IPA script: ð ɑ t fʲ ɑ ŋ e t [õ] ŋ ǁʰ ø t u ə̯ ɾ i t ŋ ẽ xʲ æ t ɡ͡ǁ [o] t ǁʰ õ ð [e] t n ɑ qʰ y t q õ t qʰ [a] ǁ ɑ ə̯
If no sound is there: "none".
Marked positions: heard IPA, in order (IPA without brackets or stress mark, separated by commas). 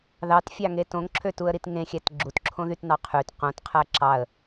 õ, u, y, æ